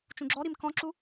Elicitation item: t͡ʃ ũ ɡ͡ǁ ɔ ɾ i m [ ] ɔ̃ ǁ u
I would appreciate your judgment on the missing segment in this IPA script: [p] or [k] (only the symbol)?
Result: k